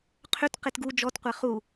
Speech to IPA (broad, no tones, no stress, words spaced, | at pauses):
qʰʏt qetɡu d͡ʒɔtqʷɛ χu